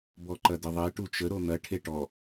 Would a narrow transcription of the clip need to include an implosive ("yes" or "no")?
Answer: no